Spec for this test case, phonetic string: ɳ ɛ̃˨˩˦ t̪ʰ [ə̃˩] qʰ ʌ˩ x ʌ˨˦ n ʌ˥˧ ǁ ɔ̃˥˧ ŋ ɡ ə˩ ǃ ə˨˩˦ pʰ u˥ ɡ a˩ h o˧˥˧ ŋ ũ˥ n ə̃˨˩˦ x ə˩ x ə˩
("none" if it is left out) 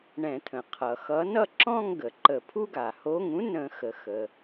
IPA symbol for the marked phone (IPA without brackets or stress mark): ə̃˩